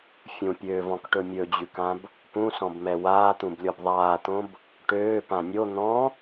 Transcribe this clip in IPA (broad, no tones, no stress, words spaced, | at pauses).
fʲũpʲøːvɔ̃kʈɵ mʲɵd͡ʑʉkãb | pũsɔ̃bmɛ waːt̪ũblʲɔb ðˤaːt̪õb | ʈøːpã nʲo n̪ɔ̃